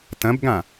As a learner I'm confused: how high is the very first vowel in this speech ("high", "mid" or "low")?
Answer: low